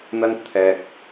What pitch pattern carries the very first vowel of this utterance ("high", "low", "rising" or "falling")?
high